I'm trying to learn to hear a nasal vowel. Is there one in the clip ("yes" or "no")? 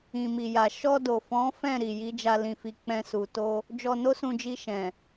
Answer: yes